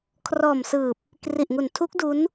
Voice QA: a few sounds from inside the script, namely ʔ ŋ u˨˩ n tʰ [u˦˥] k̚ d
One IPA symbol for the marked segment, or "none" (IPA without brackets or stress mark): u˦˥